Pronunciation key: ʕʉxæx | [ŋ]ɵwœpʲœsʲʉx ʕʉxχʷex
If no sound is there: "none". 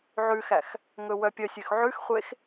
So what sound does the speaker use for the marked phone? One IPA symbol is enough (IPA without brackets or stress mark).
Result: ŋ